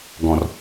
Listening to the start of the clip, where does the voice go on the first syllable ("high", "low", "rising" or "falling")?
low